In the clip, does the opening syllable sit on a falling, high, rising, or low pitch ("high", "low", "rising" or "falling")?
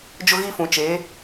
high